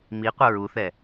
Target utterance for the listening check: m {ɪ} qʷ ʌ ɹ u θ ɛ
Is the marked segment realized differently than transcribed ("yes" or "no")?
yes